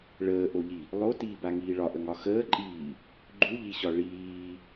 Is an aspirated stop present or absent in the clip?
absent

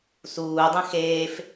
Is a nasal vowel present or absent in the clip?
present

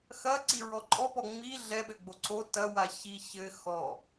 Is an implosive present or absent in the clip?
present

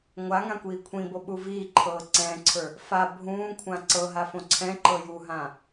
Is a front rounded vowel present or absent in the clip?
absent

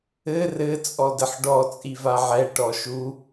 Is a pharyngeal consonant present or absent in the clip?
present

